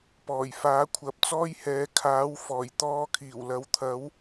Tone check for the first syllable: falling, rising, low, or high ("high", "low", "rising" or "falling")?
low